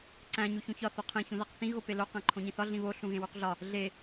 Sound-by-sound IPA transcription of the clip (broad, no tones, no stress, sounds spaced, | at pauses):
ǀ æ̃ ɲ u ç ũ ç ɒ θ o qʰ ẽ ç ũ ð æ q θ ĩ ɣ o p e l o q æ̃ ǃʰ õ ɲ ĩ θ ɒ ɮ ĩ β o ɬ ũ ɣ ẽ w u q ɮ ɒ | ɮ e